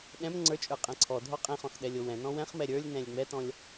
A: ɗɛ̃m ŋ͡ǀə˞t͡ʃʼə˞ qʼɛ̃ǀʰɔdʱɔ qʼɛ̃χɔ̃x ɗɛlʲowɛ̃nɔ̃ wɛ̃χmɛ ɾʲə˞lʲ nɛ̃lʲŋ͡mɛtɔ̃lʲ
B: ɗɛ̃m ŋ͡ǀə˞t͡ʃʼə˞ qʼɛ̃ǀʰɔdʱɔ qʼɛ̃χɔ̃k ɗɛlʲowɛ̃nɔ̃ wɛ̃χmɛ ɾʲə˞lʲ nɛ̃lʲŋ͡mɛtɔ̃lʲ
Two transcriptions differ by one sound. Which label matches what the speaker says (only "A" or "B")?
A